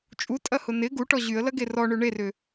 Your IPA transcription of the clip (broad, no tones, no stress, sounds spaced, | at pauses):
t͡ʃʼ u tʼ ɐ h ʊ n ɪ ɡ u ʈ ɔ ʑ y ə̯ l ɐ ɡ e r ɔ ɳ ø ɳ e r ʏ